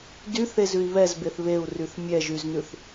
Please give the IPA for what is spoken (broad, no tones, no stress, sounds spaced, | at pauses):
d y θ e z ʉ i̯ β ɛ z b e θ β e u̯ r y θ mʲ ɛ ʒ y z n ʉ θ